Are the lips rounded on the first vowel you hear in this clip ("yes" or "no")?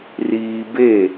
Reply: no